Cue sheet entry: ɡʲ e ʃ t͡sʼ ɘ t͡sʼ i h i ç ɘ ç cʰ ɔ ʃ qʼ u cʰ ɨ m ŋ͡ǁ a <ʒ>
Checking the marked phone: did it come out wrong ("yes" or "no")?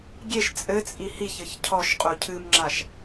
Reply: yes